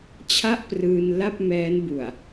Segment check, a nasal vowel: absent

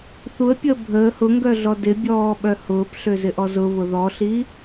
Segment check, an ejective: absent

